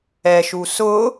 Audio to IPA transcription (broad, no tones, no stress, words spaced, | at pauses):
ɛʃu sʊ